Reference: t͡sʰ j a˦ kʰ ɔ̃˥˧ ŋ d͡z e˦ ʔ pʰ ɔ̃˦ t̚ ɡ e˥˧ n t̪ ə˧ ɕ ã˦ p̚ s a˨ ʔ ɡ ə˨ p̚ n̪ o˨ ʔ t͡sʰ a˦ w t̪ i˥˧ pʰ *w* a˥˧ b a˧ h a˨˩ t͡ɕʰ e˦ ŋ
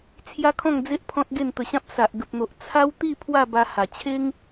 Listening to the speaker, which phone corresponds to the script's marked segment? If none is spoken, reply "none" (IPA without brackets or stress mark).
w